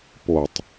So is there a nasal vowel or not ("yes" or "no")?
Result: no